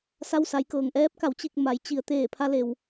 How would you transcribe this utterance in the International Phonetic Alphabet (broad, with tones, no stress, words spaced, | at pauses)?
sa˧wsa˩˧jkɤː˩ŋʔɛː˧˥p̚ ka˩˧wt͡ɕi˧˩k̚ ma˩˧j t͡ɕi˩ə̯ t̪eː˧˩pʰa˧le˩w